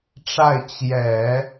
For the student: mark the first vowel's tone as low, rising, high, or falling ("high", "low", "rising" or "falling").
falling